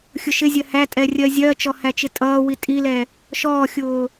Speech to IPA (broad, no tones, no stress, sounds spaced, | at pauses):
xʲ ʊ ʃ ɪ zʲ ɜ h æ tʼ ɛ rʲ ɜ zʲ ɜ t͡ʃ ɔ h æ t͡ʃ ɪ tʼ ʌː w i tʼ i l ɛ | ʃ ɔː xʲ ʊː